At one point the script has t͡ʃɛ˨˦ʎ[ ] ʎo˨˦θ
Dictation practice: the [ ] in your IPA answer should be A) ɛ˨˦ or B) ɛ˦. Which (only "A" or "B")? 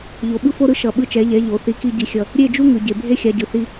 A